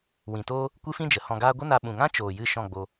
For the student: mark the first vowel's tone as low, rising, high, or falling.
low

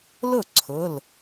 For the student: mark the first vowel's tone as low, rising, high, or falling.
falling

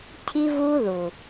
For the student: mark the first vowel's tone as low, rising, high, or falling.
high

